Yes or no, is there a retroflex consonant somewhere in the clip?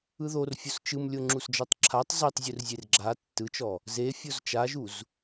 no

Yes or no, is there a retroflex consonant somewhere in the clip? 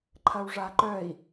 yes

